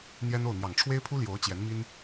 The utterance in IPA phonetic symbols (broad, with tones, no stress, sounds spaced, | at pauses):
n̪ j ɛ˥ n o˥˩ ʊ̯ n̪ j ɑ˨˩ ŋ ʈ͡ʂʰ w e˥ ɪ̯ pʰ u˥ l j o˧˥ ʊ̯ t͡ɕ j ɛ˧˥ n m i˥ n